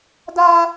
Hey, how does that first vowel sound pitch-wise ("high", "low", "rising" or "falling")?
high